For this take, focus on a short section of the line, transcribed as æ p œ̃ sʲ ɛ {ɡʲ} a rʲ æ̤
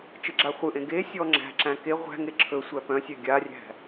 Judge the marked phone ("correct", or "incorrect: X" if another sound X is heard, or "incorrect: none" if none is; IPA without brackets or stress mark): correct